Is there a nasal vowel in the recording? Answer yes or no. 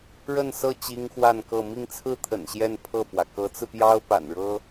no